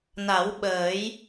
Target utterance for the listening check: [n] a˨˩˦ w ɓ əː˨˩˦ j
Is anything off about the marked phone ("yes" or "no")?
no